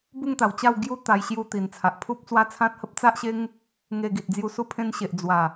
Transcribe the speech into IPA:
b u˥˧ ŋ t̪ a˨˩ w t͡ɕ a˥˧ w ɡ j u˦ t̪ a˧ j ɕ j u˧ t̪ i˨˩ n t͡sʰ a˨ ʔ pʰ u˦ p̚ t͡s w a˦ t͡sʰ ã˦ t̚ h ə˦ p̚ t͡s a˦ ʔ ɕ e˦ ŋ | ŋ e˧ ɡ i˨ t̚ d͡z j u˧ s u˧ pʰ ẽ˧ n ɕ e˨ ʔ d͡z w a˨˩

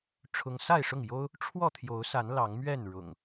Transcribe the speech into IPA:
ʈ͡ʂʰ ʊ˦ ŋ s a˥˨ ɪ̯ ʂ ʊ˥˨ ŋ j o˦ ʊ̯ | ʈ͡ʂʰ w ɔ˥˨ t̪ʰ j o˨˦ ʊ̯ s a˨˦ n l ɑ˨˦ ŋ m ɥ ɛ˥˨ n ɻ ʊ̰˨˩ ŋ

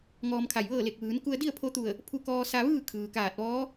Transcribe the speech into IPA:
ŋ ɔː˧ m kʰ a˧˩ j ʋ ɤː˥˨ l e˧˩ k̚ ʋ ɯː˩˧ n k u˧ ə̯ d i˥˨ ə̯ pʰ o˧ t̪ u˧˩ ə̯ | pʰ u˧ k ɔː˧ s a˧ ʋ ɯː˥˨ kʰ ɯː˩ k aː˧˩ t̚ ʋ ɔː˧˥

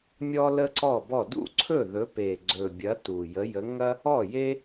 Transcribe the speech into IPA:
mʲ ɔ˥ l ə˥ ǀ ɔ˥˩ b ɔ˥˩ d ṵ˥˩ ǀʰ ɵ˥˩ ð ɵ˨˦ p e˨˩ ɡ͡ǀ ɵ˨˩ bʲ ɐ˨˦ t u˨˩ j ə˨˦ j ə˨˦ ŋ ɐ˥ | ɔ˥˩ j e˥

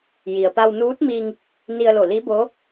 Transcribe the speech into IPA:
j i˩ ə̯ p a˧ w n uː˧˥ t̚ m i˧ ŋ | n i˧ ə̯ l o˧˩ l i˧˥ b o˧˥

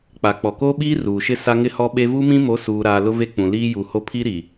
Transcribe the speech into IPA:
k͡p a˨ k͡p ɔ˨ k o˦ ɓ iː˦ r uː˨ ʃ ɪ˦ s a˦ ŋ ɪ˦ h ɔ˦ ɓ e˦ v u˦ m ĩ˦ m o˨˦ s uː˨ ɾ aː˨ l ʊ˦ v e˦ k͡p ũ˨ l iː˦ j u˨ h o˦ pʰ i˦ ɾ i˨

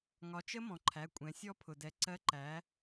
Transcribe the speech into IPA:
ŋ ɒ˩˧ t͡ʃ ə˦˥ m ɔ̃˩ ǃʰ æ˩˧˩ kʷʼ ɛ̃˩˧ sʲ ɔ˦˥ pʰ ʊ˩ d ɛ˩˧ ǀ ɜ˨˥ ǃ æ˩˧

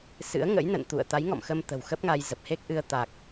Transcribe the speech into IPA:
s ɨ̰˧˥ ə̯ ŋ ə̰˧˥ j n ə̰˧˨ n t̪ ṵ˧˨ ə̯ t̪ a˨˦ j ŋ ɔ̰˧˨ m x ə˧ m t̪ ə̤˨˩ w x ə˦˥ p̚ ŋ a˧ j z ə˨˩ p̚ h e˦˥ k̚ ʔ ɨ˧ ə̯ t̪ a˨˩ k̚

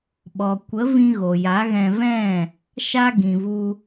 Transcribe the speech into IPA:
ɓ ɔ˨ kʷ ə˨˦ v ĩ˧ ɣ o˨ j a˨˦ ɣ ɛ̃˧ v ɛ̃˦˨ | ʃ a˧ ɡ ĩ˨ v u˧

